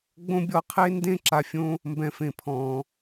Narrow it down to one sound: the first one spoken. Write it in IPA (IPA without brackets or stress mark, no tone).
ɡ͡b